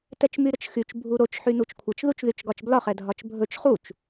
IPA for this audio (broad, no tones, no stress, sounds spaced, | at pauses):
t ɛ t͡ʃ m y ɾ ə t͡ʃ x y t͡ʃ bʱ u ɾ o t͡ʃ ħ y n u t͡ʃ kʷʰ ə t͡ʃ ð u t͡ʃ ð y t͡ʃ ɡ ɒ t͡ʃ b l ɒ χ ɛ dʱ ɒ t͡ʃ bʱ ɵ t͡ʃ χ u t͡ʃ